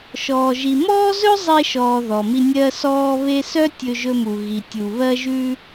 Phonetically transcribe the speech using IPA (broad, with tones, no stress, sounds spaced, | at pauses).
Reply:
ʃ ɔː˨ ʒ i˨ m ɔː˦ z ɵ˦ zˤ e˧ ʃ ɔː˨ ð ɔ˨ m i˧ nʲ ɜ˧ s ɔː˧ β e˧ s œ˦ tʲ ɵ˧ ʒ ɵ˧ m u˨ ɣ i˨ tʲ u˨ β ɜ˧ ʒ ʉ˧